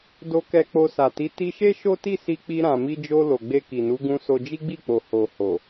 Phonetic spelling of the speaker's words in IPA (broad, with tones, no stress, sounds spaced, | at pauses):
d o˧ k ɛ˧ k͡p o˧ s a˨ t i˨˦ t i˧ ʃ e˦ ʃ o˦ t i˦˨ s i˧ k͡p i˧ ɾ ã˨ m i˧ d͡ʒ o˧ l o˨ ɡ͡b e˧ k i˨ n u˨˦ ɡ ũ˧ s o˧ d͡ʒ i˦ ɡ͡b i˦˨ k͡p o˨ h o˨ h o˨